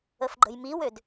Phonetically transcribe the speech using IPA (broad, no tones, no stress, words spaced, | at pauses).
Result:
əfɡ͡ǃə̤jmiwød